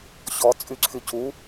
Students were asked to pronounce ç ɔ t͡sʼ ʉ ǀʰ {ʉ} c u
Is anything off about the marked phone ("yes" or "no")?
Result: no